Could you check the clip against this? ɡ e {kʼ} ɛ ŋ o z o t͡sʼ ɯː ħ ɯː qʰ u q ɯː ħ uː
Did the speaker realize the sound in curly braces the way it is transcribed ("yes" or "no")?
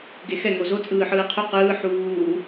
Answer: no